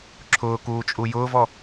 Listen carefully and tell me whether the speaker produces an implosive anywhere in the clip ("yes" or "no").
no